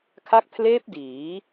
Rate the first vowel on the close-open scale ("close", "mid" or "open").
open